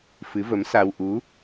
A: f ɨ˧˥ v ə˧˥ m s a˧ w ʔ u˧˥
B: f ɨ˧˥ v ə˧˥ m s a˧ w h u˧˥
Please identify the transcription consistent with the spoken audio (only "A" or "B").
A